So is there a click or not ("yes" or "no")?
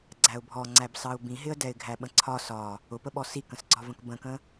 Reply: yes